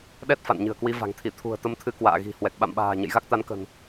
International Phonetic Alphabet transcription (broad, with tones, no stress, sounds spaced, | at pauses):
ɗ ɛ˦˥ t̚ f a̰˧˨ n ɲ ɨ̤˨˩ ə̯ k w i˨˦ v a̤˨˩ ŋ t̪ʰ i˧˩ t̪ʰ ṳ˨˩ ə̯ t̪ ə˧ m t̪ʰ ɨ˨˦ k w a̰ː˧˨ ɣ i̤˨˩ h w ɛ˨˩ k̚ ɓ a̰˧˨ m ɓ a̤ː˨˩ ɲ ə̰˧˨ j ɣ a˦˥ k̚ t̪ a˨˦ n k ə̤˨˩ n